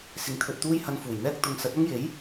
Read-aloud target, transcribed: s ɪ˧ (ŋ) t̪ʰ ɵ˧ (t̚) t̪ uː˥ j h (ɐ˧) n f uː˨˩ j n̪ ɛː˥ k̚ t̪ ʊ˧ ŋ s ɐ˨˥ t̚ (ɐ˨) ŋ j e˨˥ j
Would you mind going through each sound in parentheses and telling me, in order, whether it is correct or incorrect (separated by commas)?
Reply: correct, correct, correct, incorrect